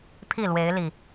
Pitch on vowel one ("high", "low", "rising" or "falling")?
falling